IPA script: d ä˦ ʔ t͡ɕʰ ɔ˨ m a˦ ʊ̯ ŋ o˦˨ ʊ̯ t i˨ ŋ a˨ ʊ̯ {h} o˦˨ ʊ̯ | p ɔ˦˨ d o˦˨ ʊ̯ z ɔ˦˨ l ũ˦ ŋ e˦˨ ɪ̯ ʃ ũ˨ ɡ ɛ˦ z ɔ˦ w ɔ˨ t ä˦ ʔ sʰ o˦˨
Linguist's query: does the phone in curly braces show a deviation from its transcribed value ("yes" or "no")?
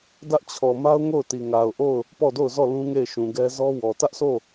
yes